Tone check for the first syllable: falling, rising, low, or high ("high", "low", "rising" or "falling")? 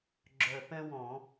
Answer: low